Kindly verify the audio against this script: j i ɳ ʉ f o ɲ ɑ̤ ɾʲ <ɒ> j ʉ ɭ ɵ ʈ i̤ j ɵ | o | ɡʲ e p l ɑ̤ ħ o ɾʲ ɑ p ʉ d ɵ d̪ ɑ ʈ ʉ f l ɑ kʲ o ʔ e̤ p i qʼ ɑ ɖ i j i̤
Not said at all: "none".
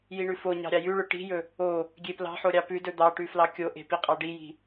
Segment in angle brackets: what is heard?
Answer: ɑ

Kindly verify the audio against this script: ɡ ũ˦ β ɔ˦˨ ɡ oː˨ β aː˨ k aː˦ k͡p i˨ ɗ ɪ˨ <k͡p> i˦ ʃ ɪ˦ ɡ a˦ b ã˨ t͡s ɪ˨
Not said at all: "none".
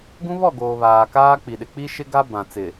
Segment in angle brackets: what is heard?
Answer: k͡p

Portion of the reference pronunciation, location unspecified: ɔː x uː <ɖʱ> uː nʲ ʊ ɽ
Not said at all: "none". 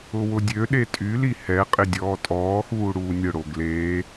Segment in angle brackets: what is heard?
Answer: ɽ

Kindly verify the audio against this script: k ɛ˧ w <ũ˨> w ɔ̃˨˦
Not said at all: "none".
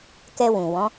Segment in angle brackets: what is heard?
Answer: ũ˨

